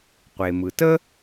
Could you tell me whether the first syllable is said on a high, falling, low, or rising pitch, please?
low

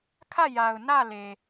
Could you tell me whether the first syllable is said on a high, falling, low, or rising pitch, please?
falling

